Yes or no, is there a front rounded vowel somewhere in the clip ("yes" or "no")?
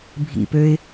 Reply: yes